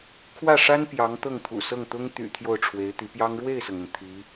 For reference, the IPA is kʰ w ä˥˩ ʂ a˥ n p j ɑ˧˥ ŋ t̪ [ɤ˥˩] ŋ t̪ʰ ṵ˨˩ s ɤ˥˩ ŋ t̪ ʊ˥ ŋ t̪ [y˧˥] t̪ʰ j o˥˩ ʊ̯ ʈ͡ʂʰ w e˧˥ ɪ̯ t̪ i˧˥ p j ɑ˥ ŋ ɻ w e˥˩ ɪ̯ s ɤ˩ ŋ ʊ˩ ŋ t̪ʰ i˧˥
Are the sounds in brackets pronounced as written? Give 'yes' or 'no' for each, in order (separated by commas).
yes, no